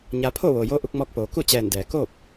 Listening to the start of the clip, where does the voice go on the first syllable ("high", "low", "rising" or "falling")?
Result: rising